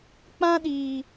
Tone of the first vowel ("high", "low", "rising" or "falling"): high